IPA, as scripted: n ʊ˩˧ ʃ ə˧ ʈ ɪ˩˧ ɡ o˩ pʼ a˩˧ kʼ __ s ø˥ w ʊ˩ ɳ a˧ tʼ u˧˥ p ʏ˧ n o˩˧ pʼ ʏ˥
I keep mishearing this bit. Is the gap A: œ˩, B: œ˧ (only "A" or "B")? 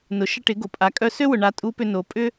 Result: B